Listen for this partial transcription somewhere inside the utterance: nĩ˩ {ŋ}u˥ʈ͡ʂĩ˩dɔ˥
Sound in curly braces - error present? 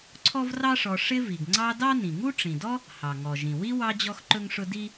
no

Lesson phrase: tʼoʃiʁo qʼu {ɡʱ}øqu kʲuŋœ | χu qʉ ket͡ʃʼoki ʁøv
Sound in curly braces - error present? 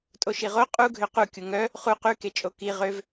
no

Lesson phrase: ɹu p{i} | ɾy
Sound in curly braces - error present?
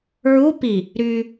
no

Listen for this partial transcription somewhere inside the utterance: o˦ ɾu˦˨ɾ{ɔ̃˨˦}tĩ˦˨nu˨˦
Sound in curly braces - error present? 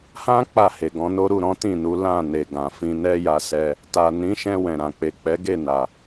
no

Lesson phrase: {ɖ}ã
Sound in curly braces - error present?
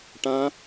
yes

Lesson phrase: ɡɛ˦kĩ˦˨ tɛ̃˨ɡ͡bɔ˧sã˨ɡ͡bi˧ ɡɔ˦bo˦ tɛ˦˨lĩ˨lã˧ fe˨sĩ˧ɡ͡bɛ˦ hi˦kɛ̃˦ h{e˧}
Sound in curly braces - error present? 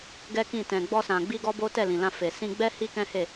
yes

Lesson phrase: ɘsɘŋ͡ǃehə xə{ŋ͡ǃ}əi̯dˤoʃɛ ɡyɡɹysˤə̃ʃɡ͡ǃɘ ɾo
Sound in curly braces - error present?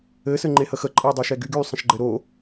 yes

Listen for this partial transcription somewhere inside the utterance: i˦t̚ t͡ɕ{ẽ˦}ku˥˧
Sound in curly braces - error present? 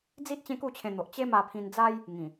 no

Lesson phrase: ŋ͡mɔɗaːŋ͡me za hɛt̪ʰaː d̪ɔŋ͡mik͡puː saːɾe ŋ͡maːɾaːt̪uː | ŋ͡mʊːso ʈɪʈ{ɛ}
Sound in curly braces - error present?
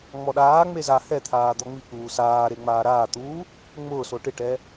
no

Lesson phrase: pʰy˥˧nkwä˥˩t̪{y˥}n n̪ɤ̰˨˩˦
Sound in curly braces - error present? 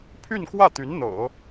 yes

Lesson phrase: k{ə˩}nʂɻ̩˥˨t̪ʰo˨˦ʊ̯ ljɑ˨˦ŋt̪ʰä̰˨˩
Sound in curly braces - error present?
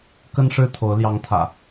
yes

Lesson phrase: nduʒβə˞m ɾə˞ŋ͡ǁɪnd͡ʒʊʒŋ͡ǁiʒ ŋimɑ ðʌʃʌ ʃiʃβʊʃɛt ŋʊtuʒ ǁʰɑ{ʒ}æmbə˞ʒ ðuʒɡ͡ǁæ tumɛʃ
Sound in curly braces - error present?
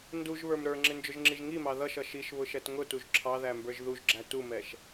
yes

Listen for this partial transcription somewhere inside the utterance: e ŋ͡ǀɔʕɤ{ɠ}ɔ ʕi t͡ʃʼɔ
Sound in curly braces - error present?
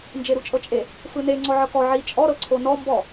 yes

